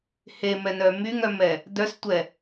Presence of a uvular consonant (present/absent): absent